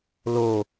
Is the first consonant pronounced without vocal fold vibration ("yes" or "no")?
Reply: no